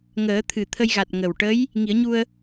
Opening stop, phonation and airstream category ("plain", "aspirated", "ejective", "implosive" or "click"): aspirated